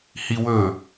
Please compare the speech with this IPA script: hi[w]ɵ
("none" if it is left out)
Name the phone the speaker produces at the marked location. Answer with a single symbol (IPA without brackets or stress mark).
w